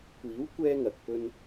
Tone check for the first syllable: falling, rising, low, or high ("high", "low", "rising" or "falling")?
rising